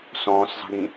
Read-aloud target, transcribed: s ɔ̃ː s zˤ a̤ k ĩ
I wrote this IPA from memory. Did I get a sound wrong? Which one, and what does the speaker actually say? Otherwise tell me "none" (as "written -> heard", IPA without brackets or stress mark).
k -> ɡ